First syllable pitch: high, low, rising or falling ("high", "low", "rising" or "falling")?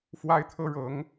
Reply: high